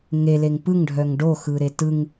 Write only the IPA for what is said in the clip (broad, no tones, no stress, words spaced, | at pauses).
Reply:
ŋeleŋ pɯŋɖʱœŋ ɖoxɯɾe tɯŋ